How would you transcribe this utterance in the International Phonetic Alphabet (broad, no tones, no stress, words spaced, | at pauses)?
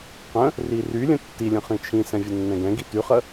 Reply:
qə̃ | rirylʲə̃ tːilʲə̃ χĩt͡ʃʰĩsɛ̃ vʲənːɛ̃ɡɛ̃ɡi tyχə